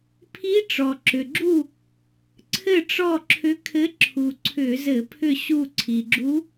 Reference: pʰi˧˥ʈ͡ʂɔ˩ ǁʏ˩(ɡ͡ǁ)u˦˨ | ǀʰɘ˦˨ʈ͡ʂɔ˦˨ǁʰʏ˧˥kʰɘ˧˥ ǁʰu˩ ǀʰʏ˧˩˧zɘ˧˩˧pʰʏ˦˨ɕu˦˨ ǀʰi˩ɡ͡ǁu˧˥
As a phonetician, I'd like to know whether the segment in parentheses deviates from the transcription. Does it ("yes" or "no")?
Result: no